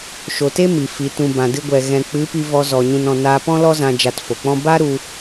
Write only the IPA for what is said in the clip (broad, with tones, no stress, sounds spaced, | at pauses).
ʃ o˨ t e˦ m i˨ f i˨˦ t ũ˧ b ã˨ d ɨ˧ ɡʷ ɛ˨ ɣ ɛ̃˨ k͡p ɨ˨˦ p i˧ v ɔ˧ z ɔ˨ ɲ ũ˨ n ɔ̃˨ n aː˧ p ɔ̃˦ l ɔ˦ z ã˧ d͡ʒ a˧ t f o˨ k͡p ɔ̃˦ b a˦ ɾ u˧